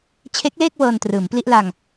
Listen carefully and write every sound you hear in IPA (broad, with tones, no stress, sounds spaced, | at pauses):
t͡ɕʰ e˦˥ k̚ l eː˥˩ k̚ w ɤː˧ n t r ɯː˩˦ m p l i˥˩ ʔ l a˧ ŋ